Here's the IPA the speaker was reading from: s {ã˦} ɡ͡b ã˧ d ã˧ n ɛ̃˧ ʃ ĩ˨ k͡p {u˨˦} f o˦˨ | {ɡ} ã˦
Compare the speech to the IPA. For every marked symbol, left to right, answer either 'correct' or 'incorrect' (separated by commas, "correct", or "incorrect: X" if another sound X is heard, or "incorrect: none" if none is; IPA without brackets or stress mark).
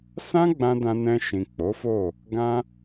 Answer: correct, incorrect: o˨˦, correct